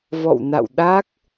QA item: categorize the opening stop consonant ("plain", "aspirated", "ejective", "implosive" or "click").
implosive